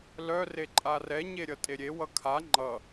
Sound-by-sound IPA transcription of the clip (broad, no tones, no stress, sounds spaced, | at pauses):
l œ r e ǃʼ a r ɛ ɲ e ɾʲ ʌ tʼ e ɾʲ e w ʌ kʰ a ŋ͡ǃ ʌ